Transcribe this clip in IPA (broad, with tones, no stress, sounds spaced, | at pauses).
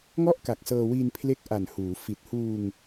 ŋ ɔ˥˩ ʔ k a˨˩ k̚ s ɤː˧ w i˧ n pʰ l e˦˥ k̚ ʔ a˨˩ n h uː˩˦ f i˨˩ t̚ h uː˧ ŋ